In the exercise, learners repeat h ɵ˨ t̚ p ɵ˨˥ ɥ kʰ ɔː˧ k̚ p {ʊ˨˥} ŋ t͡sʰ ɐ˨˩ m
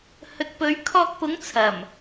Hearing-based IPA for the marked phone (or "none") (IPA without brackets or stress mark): ʊ˨˥